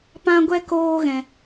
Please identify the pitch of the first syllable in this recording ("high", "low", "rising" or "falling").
high